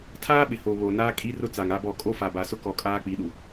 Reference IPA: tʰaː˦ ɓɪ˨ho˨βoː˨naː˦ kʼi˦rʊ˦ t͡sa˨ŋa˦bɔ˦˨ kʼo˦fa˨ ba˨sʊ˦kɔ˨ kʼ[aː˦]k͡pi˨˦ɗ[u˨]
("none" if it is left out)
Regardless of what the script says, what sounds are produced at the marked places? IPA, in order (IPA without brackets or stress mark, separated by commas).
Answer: aː˦, u˨